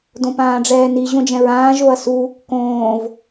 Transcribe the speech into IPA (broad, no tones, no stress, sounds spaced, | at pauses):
d õ p ãː ɖ͡ʐ ɛː n i ʑ õ d͡ʒ ɛ̃ ɹ ãː ʒ o ɐ̯ s u | k õː v